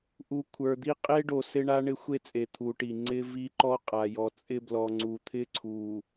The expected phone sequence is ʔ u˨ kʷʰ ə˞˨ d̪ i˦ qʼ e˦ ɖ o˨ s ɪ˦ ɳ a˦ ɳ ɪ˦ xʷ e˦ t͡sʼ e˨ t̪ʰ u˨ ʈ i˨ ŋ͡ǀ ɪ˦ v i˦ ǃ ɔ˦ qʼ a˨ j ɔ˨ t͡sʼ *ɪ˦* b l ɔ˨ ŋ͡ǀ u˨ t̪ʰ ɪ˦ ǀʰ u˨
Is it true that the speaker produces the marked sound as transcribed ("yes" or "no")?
yes